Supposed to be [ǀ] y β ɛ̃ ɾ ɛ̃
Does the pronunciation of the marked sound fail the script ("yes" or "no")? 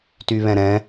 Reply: yes